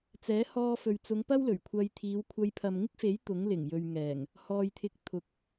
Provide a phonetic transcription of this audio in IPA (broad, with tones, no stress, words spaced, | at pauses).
t͡sɛː˨˥hɔː˧fɵ˨ɥt͡sʊ˨˧ŋ pɐ˥wlɵ˨˩ɥkʷʰɐ˧jt̪ʰiː˨˧w kʷʰɐ˨˧jpʰɐ˨mŋɪ˥k̚fe˨˥j t̪ʊ˨˥ŋlɪ˨˩ŋjɵ˨ɥŋɛː˨˩ŋ | hɔː˨jt̪ʰɪ˨˥k̚ t̪ʰʊ˨k̚